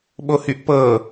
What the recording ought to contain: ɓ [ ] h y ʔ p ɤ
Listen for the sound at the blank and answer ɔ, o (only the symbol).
o